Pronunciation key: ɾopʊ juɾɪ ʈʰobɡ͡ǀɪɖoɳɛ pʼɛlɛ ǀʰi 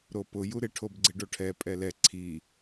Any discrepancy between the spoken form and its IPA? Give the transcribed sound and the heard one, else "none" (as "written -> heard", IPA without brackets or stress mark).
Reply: ɳ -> ʈʰ